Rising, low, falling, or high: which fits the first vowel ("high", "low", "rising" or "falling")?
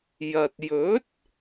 low